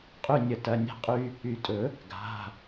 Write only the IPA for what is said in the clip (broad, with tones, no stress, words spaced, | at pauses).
qʼy˦˨nʲə˨˩˦tɐ˩˧˩ nʲe̤˦qʼy˦ | y˨˩˦tʼɵ˨˩˦ | ɡa̤˩˧˩